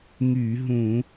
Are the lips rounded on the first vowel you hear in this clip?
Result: yes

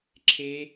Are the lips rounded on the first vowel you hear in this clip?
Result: no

